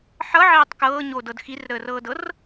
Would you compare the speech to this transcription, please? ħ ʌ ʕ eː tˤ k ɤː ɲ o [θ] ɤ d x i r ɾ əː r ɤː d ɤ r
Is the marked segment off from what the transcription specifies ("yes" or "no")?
yes